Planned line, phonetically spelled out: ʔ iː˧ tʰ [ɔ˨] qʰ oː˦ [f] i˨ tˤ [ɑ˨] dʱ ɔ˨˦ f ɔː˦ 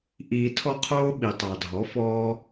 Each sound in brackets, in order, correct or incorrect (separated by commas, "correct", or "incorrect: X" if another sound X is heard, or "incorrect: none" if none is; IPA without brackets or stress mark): incorrect: ɔ˦, incorrect: ɓ, correct